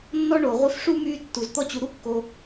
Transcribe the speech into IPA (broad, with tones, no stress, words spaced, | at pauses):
nːɔ˦ɳo˩ ʁʷi˦f ʂu˥myː˦tːu˩z t̪ɔ˦t͡ɕu˨ ɾu˦kːo˨